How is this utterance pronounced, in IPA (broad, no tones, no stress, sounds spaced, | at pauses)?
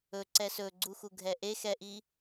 ɵ ǀ ɛ s ɵ ɡ͡ǀ u x u ɡʱ ɛ ʔ e x ɛ ʔ i